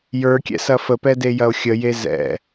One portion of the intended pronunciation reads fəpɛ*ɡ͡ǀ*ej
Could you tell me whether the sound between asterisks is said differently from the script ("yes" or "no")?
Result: yes